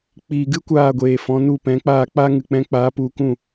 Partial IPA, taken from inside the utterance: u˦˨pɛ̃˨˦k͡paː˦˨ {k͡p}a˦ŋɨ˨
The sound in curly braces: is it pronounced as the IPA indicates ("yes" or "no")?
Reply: yes